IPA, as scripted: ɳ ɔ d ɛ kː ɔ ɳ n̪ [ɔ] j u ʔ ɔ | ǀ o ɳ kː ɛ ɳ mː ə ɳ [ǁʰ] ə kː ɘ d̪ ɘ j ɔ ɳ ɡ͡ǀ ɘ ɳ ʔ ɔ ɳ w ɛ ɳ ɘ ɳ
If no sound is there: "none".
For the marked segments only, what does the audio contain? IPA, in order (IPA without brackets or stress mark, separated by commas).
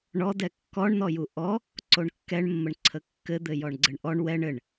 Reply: ɔ, ǀʰ